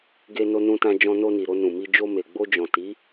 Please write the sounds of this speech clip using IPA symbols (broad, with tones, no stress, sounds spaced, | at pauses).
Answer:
ɡ e˧ n o˧ n ũ˧ t ã˧ d͡ʒ ɔ̃˧ n o˧ n i˨ ɾ o˧ n ũ˨ m i˧ d͡ʒ o˧ m e˨ ɡ͡b o˧ d͡ʒ ɔ̃˨ t i˨˦